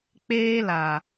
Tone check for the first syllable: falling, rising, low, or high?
high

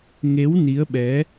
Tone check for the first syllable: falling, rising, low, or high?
rising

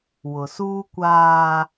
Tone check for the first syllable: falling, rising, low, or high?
low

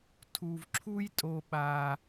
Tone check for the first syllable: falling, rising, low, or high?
low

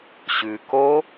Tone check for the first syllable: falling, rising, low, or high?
low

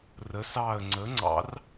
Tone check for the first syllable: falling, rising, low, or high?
rising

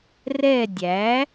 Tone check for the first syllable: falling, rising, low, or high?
falling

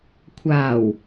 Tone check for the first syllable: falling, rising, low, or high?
low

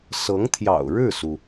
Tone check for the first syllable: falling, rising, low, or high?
rising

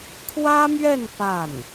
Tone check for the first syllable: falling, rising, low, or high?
high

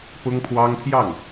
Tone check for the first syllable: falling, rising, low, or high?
high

